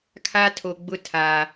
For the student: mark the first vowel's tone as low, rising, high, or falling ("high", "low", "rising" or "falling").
high